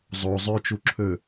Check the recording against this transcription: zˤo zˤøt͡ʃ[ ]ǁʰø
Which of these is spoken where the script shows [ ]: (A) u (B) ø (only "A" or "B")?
A